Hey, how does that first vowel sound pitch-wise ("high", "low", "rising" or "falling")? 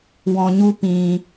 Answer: low